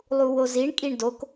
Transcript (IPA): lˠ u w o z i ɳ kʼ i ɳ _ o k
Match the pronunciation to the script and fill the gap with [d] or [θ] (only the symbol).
d